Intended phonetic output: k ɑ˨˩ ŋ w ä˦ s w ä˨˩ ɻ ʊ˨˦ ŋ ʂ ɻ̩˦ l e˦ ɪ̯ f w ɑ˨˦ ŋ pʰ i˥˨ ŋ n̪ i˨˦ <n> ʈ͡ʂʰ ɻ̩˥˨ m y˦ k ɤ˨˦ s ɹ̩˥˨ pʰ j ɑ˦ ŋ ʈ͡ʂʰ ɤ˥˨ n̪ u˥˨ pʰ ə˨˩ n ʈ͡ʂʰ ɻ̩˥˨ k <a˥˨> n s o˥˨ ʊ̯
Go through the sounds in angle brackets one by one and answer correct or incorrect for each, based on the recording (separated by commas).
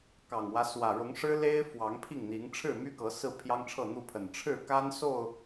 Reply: incorrect, incorrect